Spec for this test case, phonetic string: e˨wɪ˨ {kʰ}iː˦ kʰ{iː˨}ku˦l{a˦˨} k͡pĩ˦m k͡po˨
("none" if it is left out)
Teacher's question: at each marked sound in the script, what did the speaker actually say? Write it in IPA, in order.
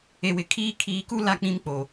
kʰ, iː˨, a˦˨

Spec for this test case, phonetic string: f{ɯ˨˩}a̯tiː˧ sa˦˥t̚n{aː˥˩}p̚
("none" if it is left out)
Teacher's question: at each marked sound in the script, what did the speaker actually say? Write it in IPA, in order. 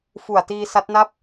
u˨˩, a˥˩

